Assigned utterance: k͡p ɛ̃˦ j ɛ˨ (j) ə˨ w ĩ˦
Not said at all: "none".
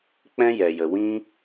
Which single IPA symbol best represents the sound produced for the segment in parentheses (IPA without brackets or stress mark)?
j